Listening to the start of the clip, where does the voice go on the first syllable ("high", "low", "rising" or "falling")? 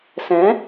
rising